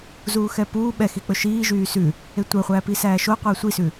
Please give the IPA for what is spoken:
z uː x ɛ p uː ɓ ɛ x i k͡p ɵ ʃ iː ʒ yː s ʉ | e tʷ œ χʷ æː p i s æː ʃ o qʷ ɛː sʷ i s ʉ

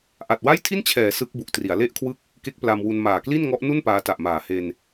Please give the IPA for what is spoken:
ʔ a˨˩ t̚ w a˥˩ j tʰ i˥˩ n t͡ɕʰ ɛː˩˦ s ɯ˦˥ k̚ b u˨˩ ʔ t r i˩˦ a̯ l e˥˩ ʔ kʰ w ɯ˥˩ k̚ | k e˦˥ k̚ p l a˧ m w u˧ n m aː˨˩ k l i˥˩ n ŋ ɔ˦˥ ʔ n u˥˩ n p aː˦˥ t a˨˩ ʔ m aː˨˩ h e˧ n

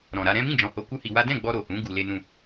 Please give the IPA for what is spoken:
ɾ ɔ̃˨ ɾ a˧ ɾ ɛ̃˦ m ĩ˦˨ d͡ʒ ɔ̃˨ h o˧ k u˦ h i˧ w a˦ d ɛ̃˦˨ ɡ͡b ɔ˧ ɾ o˨ h ũ˨˦ ɡ u˧ l e˦ n ũ˧

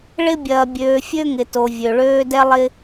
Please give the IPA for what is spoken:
ɭ ɪ˦ bʲ ɐː˨ bʲ øː˨ fʲ ø˦ ŋ ɪ˨ t o˨ vʲ ø˨ ɭ øː˦ d ɛ˦ lˠ ɪ˦

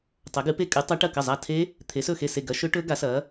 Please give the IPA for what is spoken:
tˤ ɐ˨˥ ɡ ɨ˨˥ p e˦˥ kʼ ɨ˨˥ tˤ a˦˥ ʈ ɐ˥˩ k ɐ˥˩ zˤ a˥˩ tʰ e˦˥ | t̪ʰ e˨˥ s ɵ˥˩ x e˥˩ s e˥˩ ɡ ɐ˦˥ ʃ ɵ˦˥ ʈ ɵ˦˥ ɡ a˨˥ s ɐ˨˥

